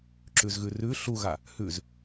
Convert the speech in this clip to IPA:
ǁ ʉ z ɣ ʉ r ʉ ɬ u ɣ a | h ʉ z

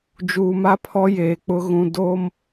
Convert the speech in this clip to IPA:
d͡ʒ uː˨ m a˦ pʰ ɔ˦ j eː˨ k͡p ʊ˦ ɣ ũ˨ d oː˦ m

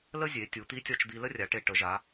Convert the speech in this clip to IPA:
l ə˥ zʲ e˩˧ tʲ u˩˧ t̪ i˧˥ tʲ ɒ˧ t͡ʃ d̪ i˧ l ə˥ rʲ a˩˧ ʈ e˧ ʈ ə˩˧ ʒ a˩˧

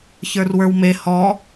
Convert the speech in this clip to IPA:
ç ə˞ r w ə˞ w m e h ɔ

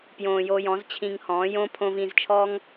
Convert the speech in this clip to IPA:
p j õː˨ j o˧ j ɔ̃˨˦ z t͡ɕʰ ĩ˧ ŋ h ɔ̃ː˨˦ j õ˧ pʰ õ˧ v ĩ˧ z t͡ʃʰ ɔ˦ ŋ

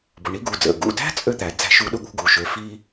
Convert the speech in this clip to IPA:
b ʊ˩˧˩ ɳ i˧˥ ɡ u˩˧˩ d͡z ə̰˩˧˩ ɡ ṵ˩˧˩ d æ̤˥ t͡sʼ ø˥ t̪ æ˩˧ d͡z æ̤˧˥ ʃ u˧˥ ɗ ʊ˥ ɠ ṳ˧˥ ɡ u˩˧ ʃ ø˩˧˩ f i˥

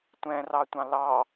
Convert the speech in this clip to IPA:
tʷ ɛ̃ r ɑ tʷ ɑ̃ l ɑ

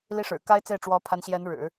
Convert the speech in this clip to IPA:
l i˥ ʂ ɻ̩˨˩ k a˥ ɪ̯ t͡s e˥˩ ɪ̯ ʈ͡ʂ w ɔ˧˥ pʰ a˧˥ n ɕ j ɛ˧˥ n ɻ ɻ̩˨˩˦

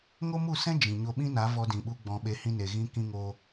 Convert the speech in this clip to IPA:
ŋ o˦ m u˦˨ s ɛ̃˦ d͡ʒ ĩ˨ ɲ o˧ ɓ ĩ˦ n a˨˦ v ɔ˧ d ĩ˨ ɓ u˧ ɡ͡b ɔ̃˨ ɓ e˧ h ĩ˧ n e˨ ɣ ĩ˧ k ĩ˧ ŋ o˧

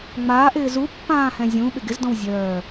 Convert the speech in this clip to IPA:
ŋ͡m aː ʔ ɪː z u pː ãː h ɛ̃ zʲ ũ ɓ ɪ ɡ ɪ z d ɔ̃ w zʲ œː

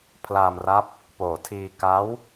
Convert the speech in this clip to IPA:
pʰ l aː˧ m r a˦˥ p̚ | p oː˨˩ tʰ iː˧ k a˦˥ w

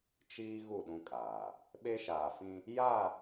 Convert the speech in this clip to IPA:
t͡ʃ iː˦ ɣ u˦˨ ɗ ũ˦ kʼ aː˨ | ɓ e˦ ʃ aː˨ f ĩ˦ | j a˦˨

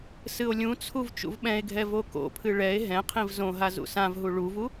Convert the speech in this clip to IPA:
s ɨ o̯ lʲ ũ t͡sʰ u v t͡ʃ ṵ v ɓ ɛ̃ e̯ ɡʱ ɛ v o k o̰ pʰ ɨ ɭ ɛ e̯ ɦ ɛ̃ qʰ ĩ v z õ ɦ a z ṵ s ã v ɦ u ɭ u v u

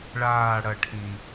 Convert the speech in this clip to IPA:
ɭ aː ɽ ɐ ʈʰ ĩ

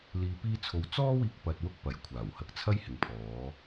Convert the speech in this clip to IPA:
l iː˧ p iː˥ t͡sʰ o˧ w t͡s ɔː˥ w iː˧ k̚ p ɐ˧ t̚ w ʊ˥ k̚ p ɐ˨˩ j kʷʰ aː˨˩ w h ɐ˨˥ k̚ t͡sʰ ɐ˥ j h ɪ˨ ŋ pʰ ɔː˨˧

